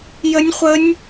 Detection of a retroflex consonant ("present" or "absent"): absent